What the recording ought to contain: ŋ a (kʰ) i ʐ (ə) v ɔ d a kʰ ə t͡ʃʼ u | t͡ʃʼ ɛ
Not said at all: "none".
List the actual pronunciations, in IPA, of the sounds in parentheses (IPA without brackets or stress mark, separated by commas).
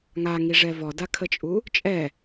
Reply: ŋ, ɛ